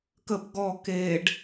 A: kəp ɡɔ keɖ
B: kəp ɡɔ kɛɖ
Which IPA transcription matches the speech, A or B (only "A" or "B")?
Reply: A